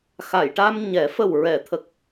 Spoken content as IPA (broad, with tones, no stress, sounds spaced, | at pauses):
x a˨˩˨ j ʈ a˧ m ɲ ɛ˨˩˦ f ə˨˩ w ɹ ɛ˨˩˨ t̪ʰ ə˨˩ k̚